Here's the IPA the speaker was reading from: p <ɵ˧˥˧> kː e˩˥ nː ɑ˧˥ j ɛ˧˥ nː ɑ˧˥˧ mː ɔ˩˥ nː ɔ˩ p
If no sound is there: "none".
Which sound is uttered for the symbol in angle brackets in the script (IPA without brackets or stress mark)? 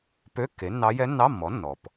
ø˧˥˧